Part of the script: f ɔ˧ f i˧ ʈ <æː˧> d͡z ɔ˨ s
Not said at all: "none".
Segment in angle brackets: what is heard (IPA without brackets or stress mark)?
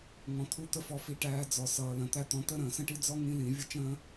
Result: æː˧